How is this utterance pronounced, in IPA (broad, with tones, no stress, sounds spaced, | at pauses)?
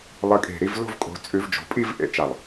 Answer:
lˠ ɨ˨˦ kʼ e̤˧˩ ɾ i˥˧ v l o̤˥˧ v kʼ o̤˨˦ t͡sʼ ʉ˨˦ v d͡ʒ o̤˩˧˩ pʼ i˥˧ v ʔ ḛ˨˦ t͡ʃ a˧˩ lˠ